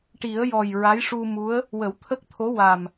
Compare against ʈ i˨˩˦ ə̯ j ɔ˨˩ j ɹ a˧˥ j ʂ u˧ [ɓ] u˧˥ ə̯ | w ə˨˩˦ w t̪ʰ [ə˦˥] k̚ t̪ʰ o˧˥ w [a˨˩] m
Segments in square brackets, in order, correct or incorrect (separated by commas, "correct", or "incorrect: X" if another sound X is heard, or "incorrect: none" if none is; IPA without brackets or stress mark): incorrect: m, correct, correct